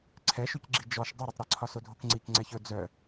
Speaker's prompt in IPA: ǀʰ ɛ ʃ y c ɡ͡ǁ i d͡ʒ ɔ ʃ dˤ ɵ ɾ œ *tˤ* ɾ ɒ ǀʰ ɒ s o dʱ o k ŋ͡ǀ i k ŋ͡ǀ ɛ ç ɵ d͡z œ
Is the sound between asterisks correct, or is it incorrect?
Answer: correct